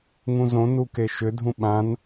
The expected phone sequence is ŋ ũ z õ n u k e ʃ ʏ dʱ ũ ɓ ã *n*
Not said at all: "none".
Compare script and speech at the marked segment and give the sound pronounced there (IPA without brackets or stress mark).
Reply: n